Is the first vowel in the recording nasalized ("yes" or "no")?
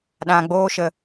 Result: yes